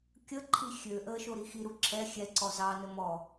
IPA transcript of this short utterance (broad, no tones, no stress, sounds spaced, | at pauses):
kʲ ə ǃʰ i xʲ ø ʔ əː ʃ o ɾ i x i ɾ u ǁ ɛ xʲ ɛ ǀ ɔ z ɑ n ə m ɔ